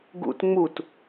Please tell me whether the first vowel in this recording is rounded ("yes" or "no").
yes